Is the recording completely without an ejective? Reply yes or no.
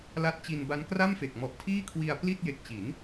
yes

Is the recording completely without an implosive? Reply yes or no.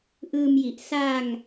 yes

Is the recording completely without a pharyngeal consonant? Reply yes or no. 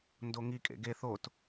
yes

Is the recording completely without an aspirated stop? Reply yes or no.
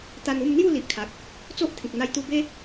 no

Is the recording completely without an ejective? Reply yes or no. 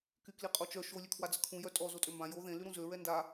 no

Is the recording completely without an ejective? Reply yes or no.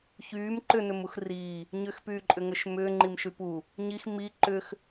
no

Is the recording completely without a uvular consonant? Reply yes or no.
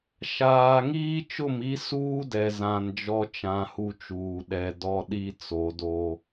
yes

